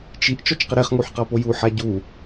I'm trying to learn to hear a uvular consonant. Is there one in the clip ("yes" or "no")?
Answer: yes